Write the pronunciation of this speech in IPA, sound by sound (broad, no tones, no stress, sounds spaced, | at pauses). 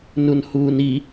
n u n h uː n i